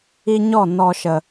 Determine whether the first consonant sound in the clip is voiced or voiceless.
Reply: voiced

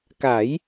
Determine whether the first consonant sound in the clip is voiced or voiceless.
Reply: voiceless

